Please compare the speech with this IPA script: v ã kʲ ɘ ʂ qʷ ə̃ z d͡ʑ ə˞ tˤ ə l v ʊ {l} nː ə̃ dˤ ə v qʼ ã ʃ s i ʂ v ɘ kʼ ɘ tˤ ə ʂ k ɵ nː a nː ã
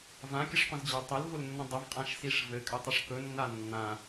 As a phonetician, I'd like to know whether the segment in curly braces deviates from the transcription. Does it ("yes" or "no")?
no